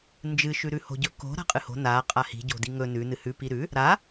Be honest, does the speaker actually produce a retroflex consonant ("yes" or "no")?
no